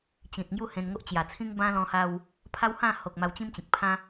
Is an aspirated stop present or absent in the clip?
present